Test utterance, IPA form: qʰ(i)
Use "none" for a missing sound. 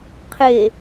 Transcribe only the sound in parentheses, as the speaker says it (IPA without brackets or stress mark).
e